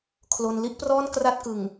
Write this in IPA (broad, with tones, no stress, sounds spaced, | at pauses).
kʰ l o˧ n l i˥˩ ʔ p r ɔː˥˩ n k r a˥˩ t̚ k ɯ˨˩ ŋ